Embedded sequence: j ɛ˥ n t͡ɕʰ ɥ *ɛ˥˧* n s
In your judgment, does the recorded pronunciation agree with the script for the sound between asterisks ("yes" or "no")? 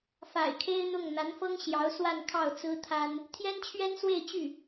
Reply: no